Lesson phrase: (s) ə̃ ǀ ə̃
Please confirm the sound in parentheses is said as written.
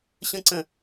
no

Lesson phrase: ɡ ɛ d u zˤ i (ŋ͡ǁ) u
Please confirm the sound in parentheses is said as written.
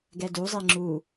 yes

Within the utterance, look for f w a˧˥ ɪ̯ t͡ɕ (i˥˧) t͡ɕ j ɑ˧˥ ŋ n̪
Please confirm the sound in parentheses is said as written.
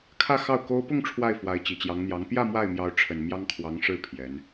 no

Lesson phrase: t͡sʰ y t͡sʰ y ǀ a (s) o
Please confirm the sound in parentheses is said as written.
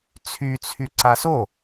yes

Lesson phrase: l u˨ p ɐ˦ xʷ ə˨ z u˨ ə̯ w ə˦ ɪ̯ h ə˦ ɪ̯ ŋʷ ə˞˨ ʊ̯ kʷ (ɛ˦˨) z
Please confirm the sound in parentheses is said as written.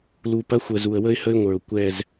yes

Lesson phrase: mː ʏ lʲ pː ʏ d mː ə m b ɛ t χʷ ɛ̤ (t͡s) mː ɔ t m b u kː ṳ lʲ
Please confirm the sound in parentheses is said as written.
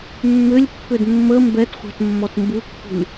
no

